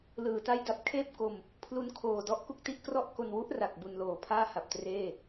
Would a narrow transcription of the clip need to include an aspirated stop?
yes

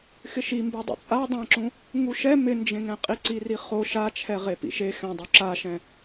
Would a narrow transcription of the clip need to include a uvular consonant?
yes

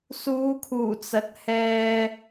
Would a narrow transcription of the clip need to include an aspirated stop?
yes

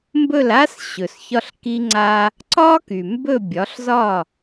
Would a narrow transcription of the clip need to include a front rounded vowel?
yes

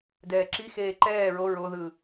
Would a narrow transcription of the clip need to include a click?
yes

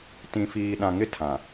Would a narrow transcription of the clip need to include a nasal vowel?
yes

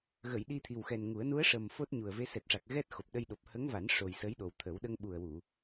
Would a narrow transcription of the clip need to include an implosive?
yes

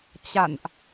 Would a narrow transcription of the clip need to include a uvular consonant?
no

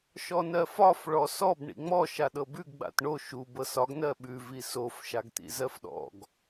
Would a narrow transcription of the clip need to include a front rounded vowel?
no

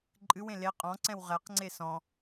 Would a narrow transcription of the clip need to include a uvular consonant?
yes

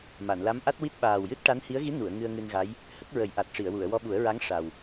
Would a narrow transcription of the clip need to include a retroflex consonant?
yes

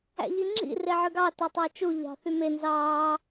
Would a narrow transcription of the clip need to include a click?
yes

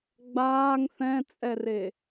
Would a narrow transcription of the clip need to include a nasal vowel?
yes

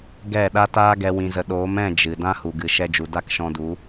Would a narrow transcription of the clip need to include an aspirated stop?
no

